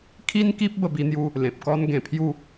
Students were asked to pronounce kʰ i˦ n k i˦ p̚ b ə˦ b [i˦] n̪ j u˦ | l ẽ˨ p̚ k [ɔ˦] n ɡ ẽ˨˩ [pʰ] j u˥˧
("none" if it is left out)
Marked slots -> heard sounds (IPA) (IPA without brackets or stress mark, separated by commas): i˦, ɔ˦, pʰ